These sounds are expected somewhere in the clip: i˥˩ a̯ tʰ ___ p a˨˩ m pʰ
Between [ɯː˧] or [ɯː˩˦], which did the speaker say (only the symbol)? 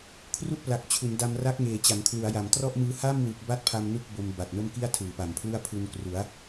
ɯː˩˦